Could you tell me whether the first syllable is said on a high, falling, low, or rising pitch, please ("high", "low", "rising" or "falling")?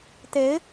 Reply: rising